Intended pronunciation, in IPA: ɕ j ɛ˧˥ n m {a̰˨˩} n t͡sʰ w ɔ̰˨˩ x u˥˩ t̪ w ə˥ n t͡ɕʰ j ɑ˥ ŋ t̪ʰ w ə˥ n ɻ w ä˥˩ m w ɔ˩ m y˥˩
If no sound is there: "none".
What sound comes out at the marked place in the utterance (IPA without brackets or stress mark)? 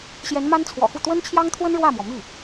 a˥